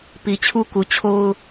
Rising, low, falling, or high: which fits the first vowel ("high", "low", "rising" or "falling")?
low